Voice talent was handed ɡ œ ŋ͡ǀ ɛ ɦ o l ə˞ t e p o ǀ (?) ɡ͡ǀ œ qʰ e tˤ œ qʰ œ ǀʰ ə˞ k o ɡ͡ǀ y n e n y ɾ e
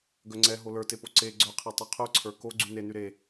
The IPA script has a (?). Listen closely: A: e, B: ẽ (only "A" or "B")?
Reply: A